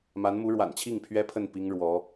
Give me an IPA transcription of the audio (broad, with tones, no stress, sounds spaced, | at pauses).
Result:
m a˧˥ n m u˧˥ ɻ w a̰˨˩ n t͡ɕʰ i˥˩ ŋ pʰ ɥ ɛ˥ pʰ ə˥˩ n p i˥ ŋ ɻ w ɔ˧˥